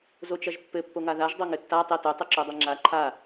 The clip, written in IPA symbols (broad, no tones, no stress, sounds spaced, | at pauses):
z o t͡ʃ ɐ ʒ pː ɘ pː o ŋ a ð a ʒ dˤ o ŋ ɘ tː a tˤ e t ɵ tˤ ɵ ǁ o dˤ ɛ ŋ͡ǁ a ǃʰ a